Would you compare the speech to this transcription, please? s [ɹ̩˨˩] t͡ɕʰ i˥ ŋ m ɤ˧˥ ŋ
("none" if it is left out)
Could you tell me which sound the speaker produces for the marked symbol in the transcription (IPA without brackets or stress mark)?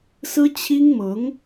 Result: ɹ̩˥